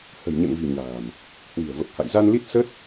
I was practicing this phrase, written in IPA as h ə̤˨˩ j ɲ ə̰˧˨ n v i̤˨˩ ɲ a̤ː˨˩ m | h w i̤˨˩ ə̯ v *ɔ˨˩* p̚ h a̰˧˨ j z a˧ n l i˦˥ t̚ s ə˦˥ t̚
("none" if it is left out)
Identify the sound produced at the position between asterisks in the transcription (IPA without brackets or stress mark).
ə˨˩